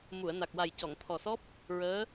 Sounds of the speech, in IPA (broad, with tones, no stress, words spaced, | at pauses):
mu˨˩˨ə̯na˨˩k̚wa˨˩j cɔ˨˩˨ŋt̪ʰɔ˨˩ sɔ˦˥p̚ | ɹəː˧˥